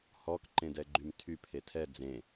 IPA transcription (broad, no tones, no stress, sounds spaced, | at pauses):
h ɔ k ǃ ẽ d ɛ ɡ͡ǃ y m tʰ y pʰ e tʰ ɛ d͡z ẽ